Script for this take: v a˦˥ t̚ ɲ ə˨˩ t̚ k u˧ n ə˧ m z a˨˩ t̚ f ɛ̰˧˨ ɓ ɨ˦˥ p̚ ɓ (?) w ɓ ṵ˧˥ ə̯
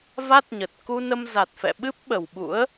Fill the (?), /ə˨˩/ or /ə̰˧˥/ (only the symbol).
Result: ə˨˩